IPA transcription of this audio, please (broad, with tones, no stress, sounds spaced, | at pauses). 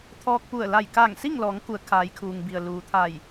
t̪ʰ ɔː˧ k̚ p u˧˩ ə̯ l a˧˩ j k aː˧˩ ŋ s i˥˨ ŋ l ɔː˩˧ ŋ k u˩˧ ə̯ kʰ aː˩˧ j kʰ uː˩ ŋ b i˩ ə̯ l uː˩ t̪ʰ a˧˩ j